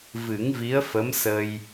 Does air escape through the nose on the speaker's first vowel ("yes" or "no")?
no